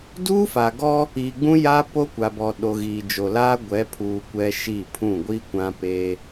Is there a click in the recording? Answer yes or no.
no